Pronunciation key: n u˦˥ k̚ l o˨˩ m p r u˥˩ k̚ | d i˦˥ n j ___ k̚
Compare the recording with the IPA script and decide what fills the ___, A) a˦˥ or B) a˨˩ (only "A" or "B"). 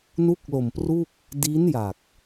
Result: B